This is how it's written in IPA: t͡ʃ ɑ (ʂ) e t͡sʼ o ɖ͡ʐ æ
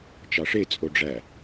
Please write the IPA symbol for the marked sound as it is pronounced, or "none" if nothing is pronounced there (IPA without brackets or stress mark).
ʂ